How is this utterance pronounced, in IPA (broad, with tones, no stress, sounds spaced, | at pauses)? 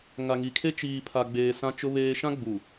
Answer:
ŋ a˨ ŋ i˨ kʰ e˦ t͡ʃ iː˨ pʰ a˨ ɡ͡b eː˨ s ã˦ t͡ʃ ʊ˦ β eː˦ ʃ ã˦ ɡ͡b u˨